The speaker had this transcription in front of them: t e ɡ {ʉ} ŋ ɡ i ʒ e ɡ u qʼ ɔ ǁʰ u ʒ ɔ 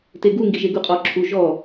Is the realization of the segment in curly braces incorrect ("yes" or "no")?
yes